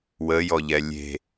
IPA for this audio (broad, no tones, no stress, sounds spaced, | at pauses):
w ə j ɔ ʎ ɛ lʲ e̤